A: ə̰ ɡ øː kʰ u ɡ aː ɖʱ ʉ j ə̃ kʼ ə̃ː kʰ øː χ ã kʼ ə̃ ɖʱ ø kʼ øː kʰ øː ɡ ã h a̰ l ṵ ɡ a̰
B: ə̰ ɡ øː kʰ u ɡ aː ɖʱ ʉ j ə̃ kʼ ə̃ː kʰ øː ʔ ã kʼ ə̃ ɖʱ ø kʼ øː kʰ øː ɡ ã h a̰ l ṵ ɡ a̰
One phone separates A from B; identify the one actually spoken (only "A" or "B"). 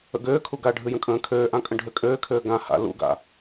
B